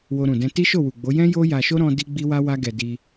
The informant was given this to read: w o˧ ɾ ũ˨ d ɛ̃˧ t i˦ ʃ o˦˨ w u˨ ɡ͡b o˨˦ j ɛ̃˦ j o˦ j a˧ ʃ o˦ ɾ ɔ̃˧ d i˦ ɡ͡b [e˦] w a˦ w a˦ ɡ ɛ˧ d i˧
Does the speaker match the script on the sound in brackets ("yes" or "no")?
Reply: no